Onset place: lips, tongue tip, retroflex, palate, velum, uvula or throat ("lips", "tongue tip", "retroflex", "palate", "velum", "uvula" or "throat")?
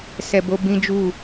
tongue tip